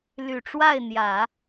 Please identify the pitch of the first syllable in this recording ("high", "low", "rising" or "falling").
low